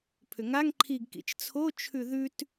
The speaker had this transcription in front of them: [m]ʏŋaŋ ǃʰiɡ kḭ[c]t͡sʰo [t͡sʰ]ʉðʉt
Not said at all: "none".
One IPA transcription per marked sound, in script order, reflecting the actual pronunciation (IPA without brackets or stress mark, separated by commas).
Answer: pʰ, t͡ʃ, t͡ʃʰ